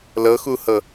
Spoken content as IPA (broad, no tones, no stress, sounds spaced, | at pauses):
l ɤ x u h ɤ